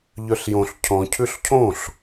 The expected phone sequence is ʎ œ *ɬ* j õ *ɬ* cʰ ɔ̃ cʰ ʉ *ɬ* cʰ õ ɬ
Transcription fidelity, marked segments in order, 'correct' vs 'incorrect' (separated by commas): correct, correct, correct